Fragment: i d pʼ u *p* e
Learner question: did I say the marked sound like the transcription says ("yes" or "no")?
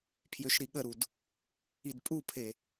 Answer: no